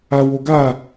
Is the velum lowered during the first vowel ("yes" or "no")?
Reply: no